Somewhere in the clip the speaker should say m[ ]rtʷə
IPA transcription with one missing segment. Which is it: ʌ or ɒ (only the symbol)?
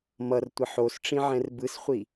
ʌ